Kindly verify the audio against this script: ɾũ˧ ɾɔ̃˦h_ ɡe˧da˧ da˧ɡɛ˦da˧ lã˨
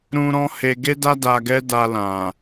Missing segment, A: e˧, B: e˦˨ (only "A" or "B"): A